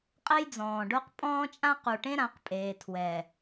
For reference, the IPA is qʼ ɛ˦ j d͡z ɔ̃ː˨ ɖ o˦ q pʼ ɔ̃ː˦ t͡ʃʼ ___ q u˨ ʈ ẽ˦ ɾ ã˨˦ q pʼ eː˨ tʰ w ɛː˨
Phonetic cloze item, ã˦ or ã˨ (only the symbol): ã˦